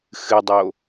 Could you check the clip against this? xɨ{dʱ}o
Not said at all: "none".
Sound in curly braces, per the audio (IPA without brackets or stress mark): dˤ